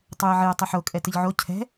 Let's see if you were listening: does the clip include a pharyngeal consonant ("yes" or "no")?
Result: yes